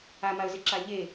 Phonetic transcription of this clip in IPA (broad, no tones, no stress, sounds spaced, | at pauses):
a m a ə̯ z ɪ ǁ a ʎ e